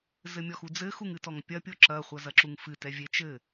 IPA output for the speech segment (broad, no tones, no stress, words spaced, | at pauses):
zɘmʲɔxud͡zɘ xuŋɨtɔŋpʲɐ pʲoǁɐ χʷɐzɐǁuŋfɨ tɛvʲe t͡ʃɘ